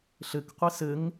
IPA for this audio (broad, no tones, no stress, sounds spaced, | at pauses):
ɬ ɘ k qʷ e s ɘ ŋ